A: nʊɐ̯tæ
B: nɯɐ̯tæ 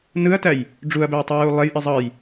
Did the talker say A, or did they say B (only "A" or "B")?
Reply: B